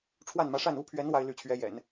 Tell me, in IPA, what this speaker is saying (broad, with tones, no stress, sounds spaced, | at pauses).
ʈ͡ʂʰ w a˥˩ n m ä˧˥ ʂ a˥˩ n u˥ pʰ ɥ ɛ˧˥ n w a˥ ɪ̯ l y˥˩ t͡ɕʰ ɥ ɛ˧˥ j ɛ̰˨˩˦ n